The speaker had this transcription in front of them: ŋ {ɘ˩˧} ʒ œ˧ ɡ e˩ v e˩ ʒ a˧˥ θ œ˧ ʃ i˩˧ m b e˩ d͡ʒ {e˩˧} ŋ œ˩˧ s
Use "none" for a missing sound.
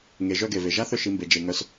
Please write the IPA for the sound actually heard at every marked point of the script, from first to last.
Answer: e˩˧, e˩

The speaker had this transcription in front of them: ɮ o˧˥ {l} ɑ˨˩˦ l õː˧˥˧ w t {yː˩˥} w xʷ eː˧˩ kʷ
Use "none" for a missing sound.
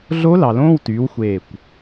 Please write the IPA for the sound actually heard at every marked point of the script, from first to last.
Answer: l, yː˩˥

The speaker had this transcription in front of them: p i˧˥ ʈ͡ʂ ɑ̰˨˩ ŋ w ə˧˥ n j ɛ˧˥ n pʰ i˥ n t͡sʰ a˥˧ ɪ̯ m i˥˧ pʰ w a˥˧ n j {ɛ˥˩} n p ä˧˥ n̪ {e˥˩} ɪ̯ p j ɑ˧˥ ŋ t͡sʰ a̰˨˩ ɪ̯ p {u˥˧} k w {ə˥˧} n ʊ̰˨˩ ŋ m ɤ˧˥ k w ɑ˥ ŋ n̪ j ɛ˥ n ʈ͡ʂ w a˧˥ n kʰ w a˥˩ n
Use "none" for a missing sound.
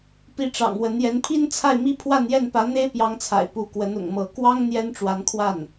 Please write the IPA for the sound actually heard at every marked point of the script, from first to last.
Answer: ɛ˥˩, e˥, u˧˥, ə˧˥

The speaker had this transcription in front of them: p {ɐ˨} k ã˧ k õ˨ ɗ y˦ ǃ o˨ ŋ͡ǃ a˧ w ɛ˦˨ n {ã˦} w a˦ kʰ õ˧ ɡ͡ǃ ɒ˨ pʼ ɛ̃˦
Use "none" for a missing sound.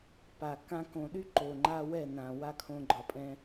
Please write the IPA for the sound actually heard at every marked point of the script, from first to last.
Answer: a˨, ã˨

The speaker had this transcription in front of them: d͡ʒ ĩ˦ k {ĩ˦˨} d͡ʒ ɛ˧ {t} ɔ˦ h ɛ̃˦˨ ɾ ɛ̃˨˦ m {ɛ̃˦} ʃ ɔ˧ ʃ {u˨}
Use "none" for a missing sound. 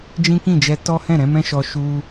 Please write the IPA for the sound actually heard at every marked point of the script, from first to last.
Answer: ĩ˦˨, t, ɛ̃˦, u˦

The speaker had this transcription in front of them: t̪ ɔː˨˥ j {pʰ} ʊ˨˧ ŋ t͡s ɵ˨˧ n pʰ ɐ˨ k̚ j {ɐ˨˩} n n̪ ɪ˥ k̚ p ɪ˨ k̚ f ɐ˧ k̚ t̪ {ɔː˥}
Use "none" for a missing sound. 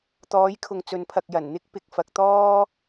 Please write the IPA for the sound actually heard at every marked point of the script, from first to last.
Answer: kʰ, ɐ˨˩, ɔː˥

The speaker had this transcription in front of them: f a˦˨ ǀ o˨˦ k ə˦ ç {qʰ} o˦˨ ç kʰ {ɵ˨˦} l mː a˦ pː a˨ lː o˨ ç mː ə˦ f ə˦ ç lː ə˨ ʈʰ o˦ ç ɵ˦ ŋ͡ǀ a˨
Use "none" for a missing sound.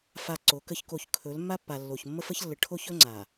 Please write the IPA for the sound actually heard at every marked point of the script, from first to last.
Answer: k, ɵ˨˦

